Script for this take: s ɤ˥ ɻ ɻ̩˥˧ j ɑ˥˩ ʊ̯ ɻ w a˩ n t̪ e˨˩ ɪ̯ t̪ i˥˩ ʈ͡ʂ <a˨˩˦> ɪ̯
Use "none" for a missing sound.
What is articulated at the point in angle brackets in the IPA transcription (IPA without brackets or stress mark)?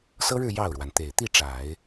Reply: a˨˩˦